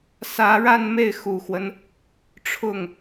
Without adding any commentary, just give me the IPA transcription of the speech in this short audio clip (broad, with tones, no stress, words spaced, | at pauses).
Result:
sä˧˥ɻa˥˧nme˥˩ɪ̯ xu˨˩xwə˦n | ʈ͡ʂʰʊ˥˩ŋ